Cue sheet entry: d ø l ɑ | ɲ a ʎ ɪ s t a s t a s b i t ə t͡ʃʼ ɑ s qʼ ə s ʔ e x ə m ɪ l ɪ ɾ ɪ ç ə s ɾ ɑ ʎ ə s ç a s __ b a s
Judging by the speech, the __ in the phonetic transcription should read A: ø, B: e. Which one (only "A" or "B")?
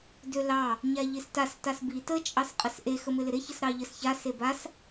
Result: B